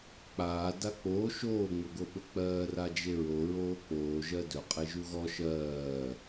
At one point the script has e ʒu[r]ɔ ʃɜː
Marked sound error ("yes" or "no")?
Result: yes